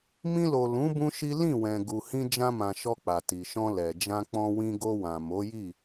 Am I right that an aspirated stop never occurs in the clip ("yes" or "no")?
yes